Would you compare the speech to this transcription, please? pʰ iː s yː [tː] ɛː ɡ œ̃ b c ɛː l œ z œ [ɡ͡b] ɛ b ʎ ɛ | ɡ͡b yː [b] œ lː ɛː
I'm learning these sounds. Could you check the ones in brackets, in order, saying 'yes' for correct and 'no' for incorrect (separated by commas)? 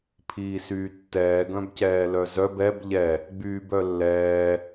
yes, no, yes